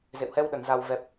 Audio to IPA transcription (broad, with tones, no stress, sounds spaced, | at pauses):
z ḛ˧˨ w h ɛ˧ w ɗ ə˧˩ n z a˨˩ w v ɛ˨˩ p̚